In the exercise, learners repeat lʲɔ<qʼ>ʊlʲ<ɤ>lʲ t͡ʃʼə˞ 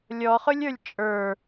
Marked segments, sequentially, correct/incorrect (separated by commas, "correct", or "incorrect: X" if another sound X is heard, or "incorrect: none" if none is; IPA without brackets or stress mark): incorrect: χ, incorrect: ə˞